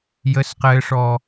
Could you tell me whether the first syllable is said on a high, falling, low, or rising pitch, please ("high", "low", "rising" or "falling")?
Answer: high